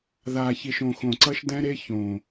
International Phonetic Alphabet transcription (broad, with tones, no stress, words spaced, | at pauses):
ðaː˨çi˨ʃ õ˨xõ˨ǀʌ˦ʃ dɛ̃˦ɾe˦ çõ˨